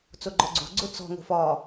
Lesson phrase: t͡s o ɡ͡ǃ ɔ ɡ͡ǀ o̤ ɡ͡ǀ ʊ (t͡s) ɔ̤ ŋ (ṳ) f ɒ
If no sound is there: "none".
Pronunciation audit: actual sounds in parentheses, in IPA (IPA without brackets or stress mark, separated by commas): t͡s, o̤